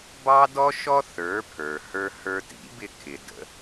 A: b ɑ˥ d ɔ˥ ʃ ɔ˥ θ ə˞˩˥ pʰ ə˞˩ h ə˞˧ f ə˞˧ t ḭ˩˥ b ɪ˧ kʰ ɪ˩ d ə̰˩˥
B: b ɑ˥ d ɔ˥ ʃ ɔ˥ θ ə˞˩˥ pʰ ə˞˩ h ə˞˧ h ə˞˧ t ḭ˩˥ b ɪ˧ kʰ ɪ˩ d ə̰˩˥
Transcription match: B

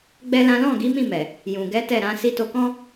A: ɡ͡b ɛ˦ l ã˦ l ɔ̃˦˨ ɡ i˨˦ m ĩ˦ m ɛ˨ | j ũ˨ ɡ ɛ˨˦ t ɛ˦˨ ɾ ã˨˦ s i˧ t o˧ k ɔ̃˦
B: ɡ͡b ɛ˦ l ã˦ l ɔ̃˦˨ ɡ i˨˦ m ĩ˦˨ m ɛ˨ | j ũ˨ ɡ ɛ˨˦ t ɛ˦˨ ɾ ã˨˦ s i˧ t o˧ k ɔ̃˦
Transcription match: B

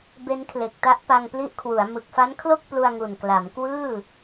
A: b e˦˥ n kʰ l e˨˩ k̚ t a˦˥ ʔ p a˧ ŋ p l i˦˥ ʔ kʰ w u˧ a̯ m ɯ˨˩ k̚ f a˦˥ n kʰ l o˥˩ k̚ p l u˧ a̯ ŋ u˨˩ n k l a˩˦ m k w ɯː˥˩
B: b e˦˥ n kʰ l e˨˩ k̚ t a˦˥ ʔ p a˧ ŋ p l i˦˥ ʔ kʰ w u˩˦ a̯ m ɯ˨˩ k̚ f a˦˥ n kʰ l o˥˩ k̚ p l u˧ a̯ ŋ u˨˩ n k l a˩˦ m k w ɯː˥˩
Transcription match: B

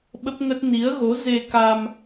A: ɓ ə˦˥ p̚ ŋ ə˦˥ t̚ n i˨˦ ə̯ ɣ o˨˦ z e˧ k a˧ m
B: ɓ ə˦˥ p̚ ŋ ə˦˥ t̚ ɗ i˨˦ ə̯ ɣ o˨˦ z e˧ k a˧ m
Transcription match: A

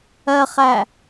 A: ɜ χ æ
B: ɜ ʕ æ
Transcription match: A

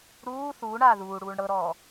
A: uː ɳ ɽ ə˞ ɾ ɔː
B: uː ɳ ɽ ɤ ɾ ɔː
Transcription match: B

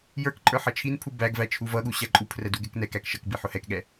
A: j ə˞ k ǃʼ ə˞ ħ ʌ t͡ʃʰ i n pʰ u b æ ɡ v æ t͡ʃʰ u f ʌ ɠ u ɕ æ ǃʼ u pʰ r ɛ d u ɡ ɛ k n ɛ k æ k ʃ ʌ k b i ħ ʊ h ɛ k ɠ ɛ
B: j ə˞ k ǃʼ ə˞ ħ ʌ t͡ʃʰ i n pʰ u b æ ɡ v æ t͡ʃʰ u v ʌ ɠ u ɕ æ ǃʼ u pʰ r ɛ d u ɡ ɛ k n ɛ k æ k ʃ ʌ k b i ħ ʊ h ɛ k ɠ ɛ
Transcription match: B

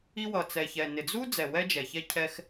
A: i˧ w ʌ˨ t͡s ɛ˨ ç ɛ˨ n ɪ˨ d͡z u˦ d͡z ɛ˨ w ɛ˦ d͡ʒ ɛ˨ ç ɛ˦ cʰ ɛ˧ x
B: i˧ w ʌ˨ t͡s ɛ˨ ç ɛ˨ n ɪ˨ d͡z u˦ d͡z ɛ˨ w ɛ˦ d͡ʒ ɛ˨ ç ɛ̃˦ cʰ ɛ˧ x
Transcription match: A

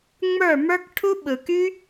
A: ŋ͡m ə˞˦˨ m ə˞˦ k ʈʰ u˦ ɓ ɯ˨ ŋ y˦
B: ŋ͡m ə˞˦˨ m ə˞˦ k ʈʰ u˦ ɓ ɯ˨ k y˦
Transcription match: B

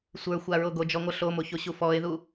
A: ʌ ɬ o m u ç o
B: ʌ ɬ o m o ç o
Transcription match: B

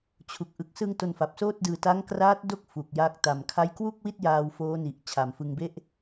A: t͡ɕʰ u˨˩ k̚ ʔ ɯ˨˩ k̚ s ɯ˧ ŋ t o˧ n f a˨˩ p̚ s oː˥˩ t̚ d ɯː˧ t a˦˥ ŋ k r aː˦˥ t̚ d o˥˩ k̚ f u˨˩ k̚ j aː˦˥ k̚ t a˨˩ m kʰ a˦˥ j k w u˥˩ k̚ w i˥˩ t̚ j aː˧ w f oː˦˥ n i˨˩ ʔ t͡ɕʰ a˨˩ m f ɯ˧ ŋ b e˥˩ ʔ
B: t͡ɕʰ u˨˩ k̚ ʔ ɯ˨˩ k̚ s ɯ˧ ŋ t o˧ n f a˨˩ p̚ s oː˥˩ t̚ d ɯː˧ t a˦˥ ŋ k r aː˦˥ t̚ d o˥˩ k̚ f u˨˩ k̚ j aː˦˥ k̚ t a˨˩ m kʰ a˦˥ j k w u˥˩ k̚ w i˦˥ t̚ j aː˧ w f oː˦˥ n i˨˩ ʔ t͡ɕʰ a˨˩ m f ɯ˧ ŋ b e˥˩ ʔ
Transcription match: A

